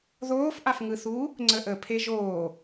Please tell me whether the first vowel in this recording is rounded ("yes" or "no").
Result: yes